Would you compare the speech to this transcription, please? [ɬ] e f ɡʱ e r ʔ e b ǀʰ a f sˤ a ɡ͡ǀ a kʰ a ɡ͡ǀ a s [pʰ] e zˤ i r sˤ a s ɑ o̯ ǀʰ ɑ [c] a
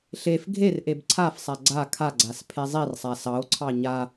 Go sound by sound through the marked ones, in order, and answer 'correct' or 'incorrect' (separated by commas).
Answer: correct, correct, incorrect